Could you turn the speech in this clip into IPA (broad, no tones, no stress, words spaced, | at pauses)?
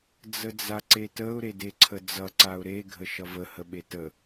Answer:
d͡zəd͡zaǀetəʊ̯ ɾedeǀʰəd͡zʌ ǀaʊ̯ɾe ɡʱəʃʌvə həɓetə